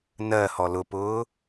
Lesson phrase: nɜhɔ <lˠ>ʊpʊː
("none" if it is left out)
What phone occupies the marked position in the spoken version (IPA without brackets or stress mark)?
l